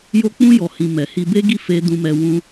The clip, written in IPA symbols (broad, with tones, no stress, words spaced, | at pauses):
jo˧k͡pũ˧ jɔ˨hĩ˨ mɛ˨hi˧ be˦ɡi˦˨ fe˧ dũ˧mɛ˧ wũ˧